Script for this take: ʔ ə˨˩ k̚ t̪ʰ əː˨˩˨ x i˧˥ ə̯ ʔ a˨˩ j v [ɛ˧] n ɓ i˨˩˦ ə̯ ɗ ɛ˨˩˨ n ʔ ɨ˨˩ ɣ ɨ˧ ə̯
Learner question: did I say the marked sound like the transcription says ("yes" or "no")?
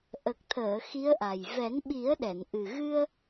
no